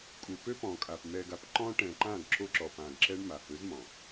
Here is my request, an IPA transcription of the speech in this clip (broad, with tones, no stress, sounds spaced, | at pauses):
kʼ u˨ p ø˦ p ɔ̃˨ kʼ a˨ p m ɛ˨ ɡ a˨ p ǃ ɔ̃˦ ʈ ɛ̃˨ ǃ ã˦˨ ɡ ǁ o˦ ǁ ɔ˨ p ã˨ ɡ ǁ ɛ˦ ɳ m a˨ h ø˨˦ z m ɔ̃˨